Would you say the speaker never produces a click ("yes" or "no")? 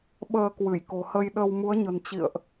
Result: yes